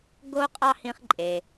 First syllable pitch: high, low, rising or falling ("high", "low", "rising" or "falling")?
high